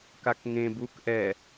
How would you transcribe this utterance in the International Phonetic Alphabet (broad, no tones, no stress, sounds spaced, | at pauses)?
k a k ŋ ẽ b u k ʔ ɛ